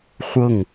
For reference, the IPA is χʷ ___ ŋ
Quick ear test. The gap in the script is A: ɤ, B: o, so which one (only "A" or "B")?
A